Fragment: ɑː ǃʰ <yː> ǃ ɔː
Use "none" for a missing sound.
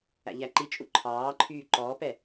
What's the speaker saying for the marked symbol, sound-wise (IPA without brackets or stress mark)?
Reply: yː